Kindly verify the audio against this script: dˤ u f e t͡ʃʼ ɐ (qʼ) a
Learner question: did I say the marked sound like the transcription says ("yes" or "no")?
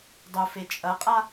yes